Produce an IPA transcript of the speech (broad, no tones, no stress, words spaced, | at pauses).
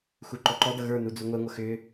xuǃɔǃɔdʌ ɣə˞nu d͡zuŋʷɛŋʷʌ xʏ